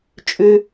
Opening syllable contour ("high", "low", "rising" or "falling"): low